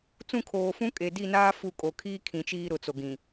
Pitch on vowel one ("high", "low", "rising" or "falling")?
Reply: falling